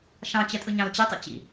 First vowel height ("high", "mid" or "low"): low